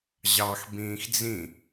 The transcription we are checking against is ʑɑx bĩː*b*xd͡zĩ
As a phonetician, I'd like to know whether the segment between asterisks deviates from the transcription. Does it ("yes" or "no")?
yes